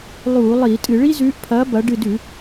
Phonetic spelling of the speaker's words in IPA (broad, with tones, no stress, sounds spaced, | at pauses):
lˠ uː˧˩˧ lˠ iː˧˩˧ tʼ ɨ˧˩˧ ɭ i˥ z ʉː˨˥ ʔ pʰ ɐː˨˥ b ɐ˩˧ ɖ ɨ˧˩ d ʉ˧˩˧